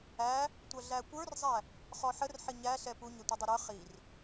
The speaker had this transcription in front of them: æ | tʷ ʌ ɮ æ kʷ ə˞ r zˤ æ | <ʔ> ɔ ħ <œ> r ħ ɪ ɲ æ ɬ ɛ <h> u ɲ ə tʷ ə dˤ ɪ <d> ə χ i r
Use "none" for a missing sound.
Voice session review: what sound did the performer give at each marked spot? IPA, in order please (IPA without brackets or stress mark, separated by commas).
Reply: χ, ə, p, ɾ